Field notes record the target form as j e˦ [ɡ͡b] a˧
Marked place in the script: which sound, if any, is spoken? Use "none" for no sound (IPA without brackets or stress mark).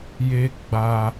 ɡ͡b